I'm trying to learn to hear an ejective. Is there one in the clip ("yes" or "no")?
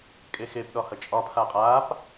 yes